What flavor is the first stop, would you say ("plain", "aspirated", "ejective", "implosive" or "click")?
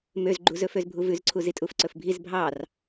click